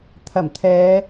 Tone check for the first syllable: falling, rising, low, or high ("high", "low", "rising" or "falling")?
low